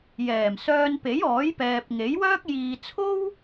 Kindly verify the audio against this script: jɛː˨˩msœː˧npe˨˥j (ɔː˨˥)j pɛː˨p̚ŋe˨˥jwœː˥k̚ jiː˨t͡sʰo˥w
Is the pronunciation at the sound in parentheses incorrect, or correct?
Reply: correct